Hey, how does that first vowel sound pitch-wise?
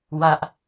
high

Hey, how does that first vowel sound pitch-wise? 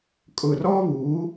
low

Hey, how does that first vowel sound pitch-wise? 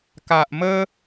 low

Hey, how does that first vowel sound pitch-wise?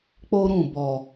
high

